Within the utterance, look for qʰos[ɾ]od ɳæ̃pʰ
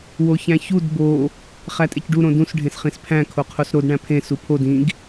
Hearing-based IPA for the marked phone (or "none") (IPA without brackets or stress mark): ɾ